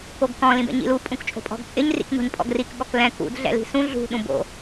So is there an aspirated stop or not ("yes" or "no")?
no